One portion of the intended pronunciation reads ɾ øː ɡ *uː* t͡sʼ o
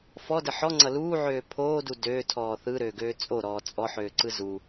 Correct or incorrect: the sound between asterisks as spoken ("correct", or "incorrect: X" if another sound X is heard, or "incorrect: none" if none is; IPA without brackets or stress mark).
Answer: incorrect: øː